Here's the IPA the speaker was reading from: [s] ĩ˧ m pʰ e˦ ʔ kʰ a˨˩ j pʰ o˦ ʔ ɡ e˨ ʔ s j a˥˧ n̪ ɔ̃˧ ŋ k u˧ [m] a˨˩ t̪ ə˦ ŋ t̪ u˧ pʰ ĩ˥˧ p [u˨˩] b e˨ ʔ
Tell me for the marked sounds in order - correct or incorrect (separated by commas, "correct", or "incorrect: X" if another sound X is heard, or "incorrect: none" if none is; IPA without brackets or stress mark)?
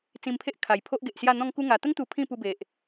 incorrect: t͡s, incorrect: ŋ, incorrect: u˧